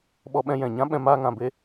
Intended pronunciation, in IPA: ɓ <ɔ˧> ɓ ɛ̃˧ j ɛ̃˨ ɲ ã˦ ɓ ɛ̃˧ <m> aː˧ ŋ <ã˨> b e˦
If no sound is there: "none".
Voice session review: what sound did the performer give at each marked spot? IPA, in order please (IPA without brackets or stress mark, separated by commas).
ɔ˧, m, ã˨